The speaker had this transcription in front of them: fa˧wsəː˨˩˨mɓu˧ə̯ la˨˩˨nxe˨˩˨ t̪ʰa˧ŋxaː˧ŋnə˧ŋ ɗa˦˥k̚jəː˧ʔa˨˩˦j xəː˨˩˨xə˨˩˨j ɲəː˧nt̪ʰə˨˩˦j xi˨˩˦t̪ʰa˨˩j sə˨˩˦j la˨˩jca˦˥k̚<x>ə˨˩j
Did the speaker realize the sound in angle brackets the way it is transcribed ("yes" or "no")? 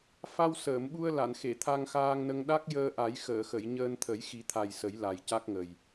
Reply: no